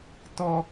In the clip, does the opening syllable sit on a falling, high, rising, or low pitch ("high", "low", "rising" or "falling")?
high